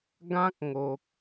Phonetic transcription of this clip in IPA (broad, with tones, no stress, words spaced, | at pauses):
ɡã˦k̚ŋo˨k̚